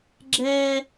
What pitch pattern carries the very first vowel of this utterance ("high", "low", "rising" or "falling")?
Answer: high